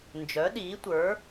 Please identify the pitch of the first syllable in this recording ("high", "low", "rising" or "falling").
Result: rising